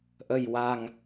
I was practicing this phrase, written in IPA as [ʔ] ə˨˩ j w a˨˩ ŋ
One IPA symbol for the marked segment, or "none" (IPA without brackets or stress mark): ʔ